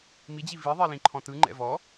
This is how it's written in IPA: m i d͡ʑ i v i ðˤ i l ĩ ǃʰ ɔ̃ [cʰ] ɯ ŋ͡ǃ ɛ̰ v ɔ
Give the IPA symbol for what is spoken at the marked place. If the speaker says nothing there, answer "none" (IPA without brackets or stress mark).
t